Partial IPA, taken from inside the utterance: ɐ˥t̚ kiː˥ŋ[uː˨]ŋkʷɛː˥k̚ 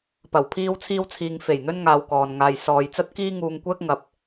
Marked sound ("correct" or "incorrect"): incorrect